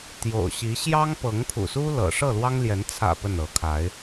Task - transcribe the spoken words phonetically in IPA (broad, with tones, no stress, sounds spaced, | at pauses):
t̪ j o̰˨˩ ʊ̯ ɕ i˨˦ ɕ j ɑ˦ ŋ p ɤ˨˦ ŋ pʰ ṵ˨˩ s u˦ l ɤ̰˨˩ ʂ ɤ˥˨ l w ɑ˦ ŋ l j ɛ˨˦ n t͡sʰ ä̰˨˩ p ə˥˨ n ɤ˨˦ kʰ a˨˦ ɪ̯